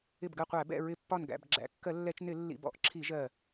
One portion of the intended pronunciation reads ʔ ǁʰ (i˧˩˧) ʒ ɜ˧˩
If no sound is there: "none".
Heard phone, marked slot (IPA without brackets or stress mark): i˧˩˧